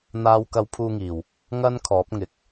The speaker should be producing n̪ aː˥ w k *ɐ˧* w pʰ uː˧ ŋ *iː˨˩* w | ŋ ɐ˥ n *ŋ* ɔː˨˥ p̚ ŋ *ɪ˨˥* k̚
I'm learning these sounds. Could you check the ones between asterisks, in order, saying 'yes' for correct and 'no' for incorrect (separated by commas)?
yes, yes, no, yes